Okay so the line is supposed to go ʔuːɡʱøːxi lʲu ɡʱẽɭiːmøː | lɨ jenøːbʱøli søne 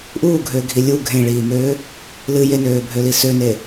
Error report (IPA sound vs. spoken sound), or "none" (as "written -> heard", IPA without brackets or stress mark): x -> ɡʱ